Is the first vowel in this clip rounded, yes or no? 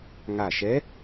no